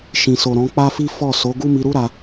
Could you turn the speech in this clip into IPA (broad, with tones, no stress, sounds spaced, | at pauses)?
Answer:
ʃ ĩ˨ s o˨ ɾ ɔ̃˨˦ k͡p a˦ f i˦ f ɔ˦˨ s o˨˦ ɡ u˦ m i˧ ɾ u˦ ɾ a˧